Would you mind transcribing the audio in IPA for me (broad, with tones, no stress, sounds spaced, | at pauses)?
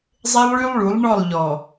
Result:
zˤ e˦ lˠ ɭ y˦ lˠ ɭ u˨˦ lˠ ɳ ɔ˦˨ lˠ ʎ ɔ˨